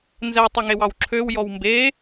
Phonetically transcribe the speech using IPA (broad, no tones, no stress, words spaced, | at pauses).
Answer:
nzɛ tˤɵŋewɑwǁʰøw jɔwmbe